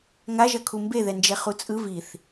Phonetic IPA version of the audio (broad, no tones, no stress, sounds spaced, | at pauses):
ŋ a ʒ ʌ kʰ u m b e ð ɛ n d͡ʒ ɛ χ u t͡sʼ ɯ v i θ